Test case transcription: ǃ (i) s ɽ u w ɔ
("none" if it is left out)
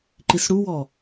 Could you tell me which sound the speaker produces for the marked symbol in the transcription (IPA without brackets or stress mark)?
i